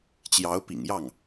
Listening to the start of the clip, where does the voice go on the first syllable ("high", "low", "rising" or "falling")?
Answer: rising